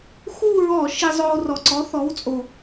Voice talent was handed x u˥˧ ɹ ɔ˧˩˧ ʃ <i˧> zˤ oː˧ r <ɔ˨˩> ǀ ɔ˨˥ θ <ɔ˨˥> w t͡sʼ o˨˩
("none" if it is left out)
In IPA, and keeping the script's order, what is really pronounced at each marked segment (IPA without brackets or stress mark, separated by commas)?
i˧, ɔ˨˩, ɔ˨˥